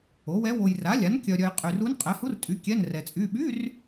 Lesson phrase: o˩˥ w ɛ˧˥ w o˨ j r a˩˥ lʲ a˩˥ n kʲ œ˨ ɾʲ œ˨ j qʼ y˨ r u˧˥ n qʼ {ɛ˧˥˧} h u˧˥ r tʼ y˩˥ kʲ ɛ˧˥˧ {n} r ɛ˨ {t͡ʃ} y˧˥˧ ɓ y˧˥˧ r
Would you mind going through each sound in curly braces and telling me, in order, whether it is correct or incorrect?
incorrect: ɛ˩˥, correct, incorrect: t͡sʼ

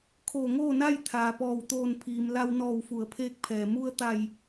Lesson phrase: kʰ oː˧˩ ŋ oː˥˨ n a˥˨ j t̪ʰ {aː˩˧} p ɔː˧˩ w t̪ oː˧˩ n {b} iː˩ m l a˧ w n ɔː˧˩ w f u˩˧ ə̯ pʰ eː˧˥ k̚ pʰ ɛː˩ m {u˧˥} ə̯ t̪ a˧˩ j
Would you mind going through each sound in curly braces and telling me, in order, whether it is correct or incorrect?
incorrect: aː˩, incorrect: pʰ, incorrect: u˧

